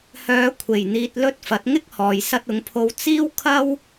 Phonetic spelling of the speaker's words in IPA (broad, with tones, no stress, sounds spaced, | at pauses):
h œː˨˧ kʷʰ e˨˩ j n̪ iː˨ t̚ l ɵ˧ t̚ f ɐ˨˥ t̚ ŋ ɪ˥ k̚ h ɔː˨ j s ɐ˧ t̚ ʊ˨˧ ŋ pʰ o˧ w t͡s iː˥ w kʰ ɐ˥ w